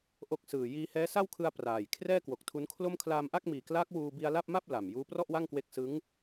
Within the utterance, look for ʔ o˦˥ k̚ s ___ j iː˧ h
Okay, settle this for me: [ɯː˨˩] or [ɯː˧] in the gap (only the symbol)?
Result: ɯː˨˩